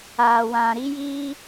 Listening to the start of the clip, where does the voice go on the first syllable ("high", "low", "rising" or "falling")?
low